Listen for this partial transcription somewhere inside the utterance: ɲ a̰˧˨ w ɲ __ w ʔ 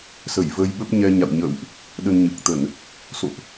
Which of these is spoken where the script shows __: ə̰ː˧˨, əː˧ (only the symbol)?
ə̰ː˧˨